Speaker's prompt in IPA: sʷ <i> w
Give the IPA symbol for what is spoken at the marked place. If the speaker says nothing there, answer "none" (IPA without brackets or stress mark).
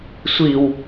i